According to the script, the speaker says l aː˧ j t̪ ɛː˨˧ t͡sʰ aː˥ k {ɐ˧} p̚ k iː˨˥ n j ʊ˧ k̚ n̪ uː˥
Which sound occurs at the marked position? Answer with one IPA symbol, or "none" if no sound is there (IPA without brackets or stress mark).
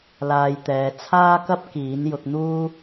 ɐ˥